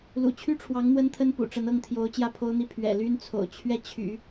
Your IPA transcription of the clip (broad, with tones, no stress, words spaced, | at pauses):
lṵ˨˩t͡ɕʰy˥ʈ͡ʂʰwɑ˧˥ŋ n̪wə˥nt̪ʰə˥npṵ˨˩ʈ͡ʂə˧˥n ɤ˥˩ŋt̪ʰjo˧˥ʊ̯ t͡ɕjä˥˩pʰo˥ʊ̯n̪i˥˩ pʰɥɛ̰˨˩ ly˥nt͡sʰo̰˨˩ʊ̯ t͡ɕʰɥɛ˥˩t͡ɕʰy̰˨˩˦